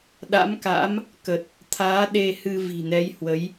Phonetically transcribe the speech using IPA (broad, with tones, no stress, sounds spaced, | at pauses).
ɗ a̰˧˥ m k a̰˧˥ m | k ə˨˩ t̚ | t̪ʰ aː˨˦ ɗ e˧ h ɨ˧ v i̤˨˩ n ɛ˨˦ j h w ə˨˦ j